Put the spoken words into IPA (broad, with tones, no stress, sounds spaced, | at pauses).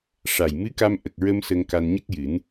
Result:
ʂ a˨˩ j m ɨ˧˥ k a˧ m ʔ ə˨˩ k̚ ɹ ə˧ m s ə˧ ŋ k a˧ n ɲ ə˦˥ k̚ j ɨ˨˩˦ n